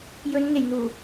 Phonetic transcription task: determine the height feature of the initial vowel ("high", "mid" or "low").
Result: mid